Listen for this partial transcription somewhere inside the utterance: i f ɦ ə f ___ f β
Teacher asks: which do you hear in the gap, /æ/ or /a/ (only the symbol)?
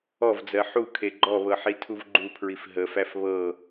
æ